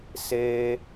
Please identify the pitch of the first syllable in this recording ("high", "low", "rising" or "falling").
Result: high